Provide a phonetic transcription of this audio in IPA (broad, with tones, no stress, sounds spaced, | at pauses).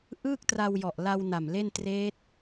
ʔ ɯː˥˩ k̚ t r a˧ w j ɔ˨˩ ʔ l a˧ w n a˨˩ m l e˥˩ n t r eː˦˥ t̚